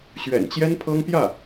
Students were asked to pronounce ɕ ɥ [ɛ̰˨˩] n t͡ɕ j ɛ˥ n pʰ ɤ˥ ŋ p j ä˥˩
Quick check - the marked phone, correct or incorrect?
correct